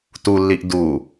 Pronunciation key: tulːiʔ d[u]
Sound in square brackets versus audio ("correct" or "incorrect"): correct